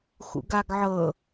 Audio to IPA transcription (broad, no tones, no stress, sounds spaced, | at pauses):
x ṵ ɡ a ɡ ʕ ɤ